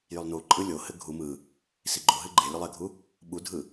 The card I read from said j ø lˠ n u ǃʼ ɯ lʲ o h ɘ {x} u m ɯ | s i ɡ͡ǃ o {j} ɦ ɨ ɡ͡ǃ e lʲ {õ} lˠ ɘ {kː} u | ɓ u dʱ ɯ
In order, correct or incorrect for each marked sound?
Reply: incorrect: ɡʱ, incorrect: none, incorrect: o, incorrect: ɡʱ

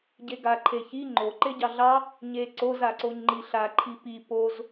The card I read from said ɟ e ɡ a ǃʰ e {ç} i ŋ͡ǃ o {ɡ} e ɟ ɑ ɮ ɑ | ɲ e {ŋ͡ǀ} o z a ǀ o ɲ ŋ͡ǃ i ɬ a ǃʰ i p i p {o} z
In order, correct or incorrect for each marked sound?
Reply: correct, incorrect: ǃ, incorrect: ǀ, correct

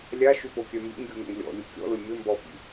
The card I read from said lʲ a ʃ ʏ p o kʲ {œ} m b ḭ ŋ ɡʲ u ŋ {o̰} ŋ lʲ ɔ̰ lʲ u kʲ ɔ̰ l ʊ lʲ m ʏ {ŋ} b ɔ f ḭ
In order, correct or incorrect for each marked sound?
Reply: correct, correct, incorrect: m

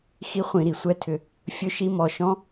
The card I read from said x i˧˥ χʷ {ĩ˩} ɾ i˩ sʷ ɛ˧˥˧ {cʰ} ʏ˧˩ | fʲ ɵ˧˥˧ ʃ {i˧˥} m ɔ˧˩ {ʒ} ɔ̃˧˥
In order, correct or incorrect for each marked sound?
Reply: incorrect: ĩ˧˩˧, incorrect: tʰ, correct, incorrect: ʃ

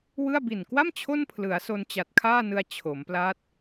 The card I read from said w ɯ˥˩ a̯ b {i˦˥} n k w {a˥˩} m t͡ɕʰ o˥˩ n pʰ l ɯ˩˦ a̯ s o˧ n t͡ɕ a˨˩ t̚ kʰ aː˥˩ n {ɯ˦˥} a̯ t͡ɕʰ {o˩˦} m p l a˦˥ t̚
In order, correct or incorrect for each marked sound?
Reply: incorrect: i˨˩, correct, incorrect: ɯ˧, correct

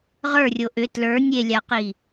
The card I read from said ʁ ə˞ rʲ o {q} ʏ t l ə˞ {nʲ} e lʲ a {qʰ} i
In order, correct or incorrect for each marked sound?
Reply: incorrect: ʔ, correct, incorrect: q

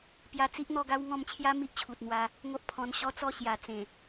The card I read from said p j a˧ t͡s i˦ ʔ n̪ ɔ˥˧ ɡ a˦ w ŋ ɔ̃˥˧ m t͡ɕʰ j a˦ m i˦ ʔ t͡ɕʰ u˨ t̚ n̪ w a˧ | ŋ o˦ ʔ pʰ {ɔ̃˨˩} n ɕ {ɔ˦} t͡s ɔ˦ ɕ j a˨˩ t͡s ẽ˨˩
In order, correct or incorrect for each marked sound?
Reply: incorrect: ɔ̃˧, correct

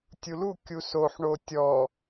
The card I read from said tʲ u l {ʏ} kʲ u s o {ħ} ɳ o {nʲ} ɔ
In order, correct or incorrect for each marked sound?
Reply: incorrect: u, correct, incorrect: tʲ

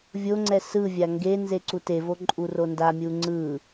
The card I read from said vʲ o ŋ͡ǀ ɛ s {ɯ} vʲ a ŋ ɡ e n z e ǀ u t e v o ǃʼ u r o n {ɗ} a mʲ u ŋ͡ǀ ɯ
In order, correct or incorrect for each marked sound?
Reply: correct, incorrect: d

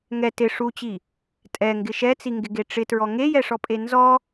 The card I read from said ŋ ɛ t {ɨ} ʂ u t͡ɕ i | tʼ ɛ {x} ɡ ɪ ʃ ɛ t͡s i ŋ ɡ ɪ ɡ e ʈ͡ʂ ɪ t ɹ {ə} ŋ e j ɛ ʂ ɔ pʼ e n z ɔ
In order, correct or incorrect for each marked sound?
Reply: incorrect: ɪ, incorrect: ŋ, incorrect: ɔ

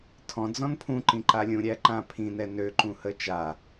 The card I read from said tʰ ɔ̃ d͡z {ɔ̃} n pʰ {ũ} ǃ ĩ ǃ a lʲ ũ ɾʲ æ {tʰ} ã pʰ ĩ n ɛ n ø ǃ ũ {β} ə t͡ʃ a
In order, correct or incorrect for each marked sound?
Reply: correct, correct, incorrect: ǃ, incorrect: h

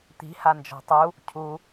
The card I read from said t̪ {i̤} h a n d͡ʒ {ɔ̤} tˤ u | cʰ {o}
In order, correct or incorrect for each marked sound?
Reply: correct, correct, incorrect: u

